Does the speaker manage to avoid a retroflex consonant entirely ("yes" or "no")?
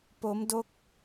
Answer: yes